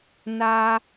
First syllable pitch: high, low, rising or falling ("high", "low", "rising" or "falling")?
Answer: high